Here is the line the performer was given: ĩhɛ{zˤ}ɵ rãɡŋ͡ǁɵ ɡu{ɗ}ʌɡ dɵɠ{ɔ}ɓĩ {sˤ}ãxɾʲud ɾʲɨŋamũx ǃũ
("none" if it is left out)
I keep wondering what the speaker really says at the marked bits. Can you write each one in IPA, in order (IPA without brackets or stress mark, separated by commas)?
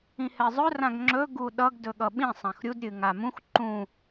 zˤ, ɗ, ʌ, sˤ